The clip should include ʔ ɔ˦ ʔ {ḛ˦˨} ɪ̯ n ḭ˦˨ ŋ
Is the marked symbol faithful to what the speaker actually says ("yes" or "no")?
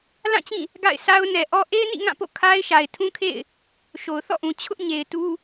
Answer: no